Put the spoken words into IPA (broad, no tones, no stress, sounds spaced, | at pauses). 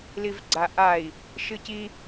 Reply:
l i v ɡ͡ǀ a ʔ a i̯ | ʃ ɨ c i